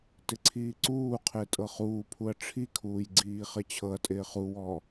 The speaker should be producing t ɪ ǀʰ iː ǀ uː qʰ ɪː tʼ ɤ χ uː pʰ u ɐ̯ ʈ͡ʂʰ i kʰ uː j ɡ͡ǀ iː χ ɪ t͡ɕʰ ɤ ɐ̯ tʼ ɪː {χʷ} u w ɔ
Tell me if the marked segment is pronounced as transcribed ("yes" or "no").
no